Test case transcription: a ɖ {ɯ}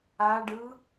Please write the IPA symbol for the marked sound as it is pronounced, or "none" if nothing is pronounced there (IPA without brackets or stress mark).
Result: ɯ